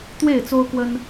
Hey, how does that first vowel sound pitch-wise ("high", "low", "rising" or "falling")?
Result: falling